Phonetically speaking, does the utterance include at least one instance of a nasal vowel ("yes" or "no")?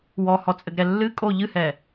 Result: no